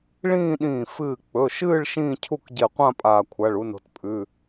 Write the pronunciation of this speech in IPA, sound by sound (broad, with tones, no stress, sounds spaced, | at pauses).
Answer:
ɭ ĩː˥˧ ɗ ĩː˧˩ f ɨː˧˩ k͡p ɵ˩˧˩ ʃ ɨː˥˧ ɭ ʃ ĩː˥˧ cʰ u˥˧ k ɟ e˧˩ qʷ ã˥˧ pʼ aː˧˩ kʷʰ a˩˧˩ ɭ u˨˦ n o̤˨˦ t pʼ ʉ˩˧˩